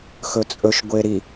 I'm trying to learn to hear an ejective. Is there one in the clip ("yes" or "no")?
yes